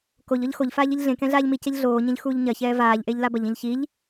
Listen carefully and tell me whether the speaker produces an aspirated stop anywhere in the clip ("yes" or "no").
no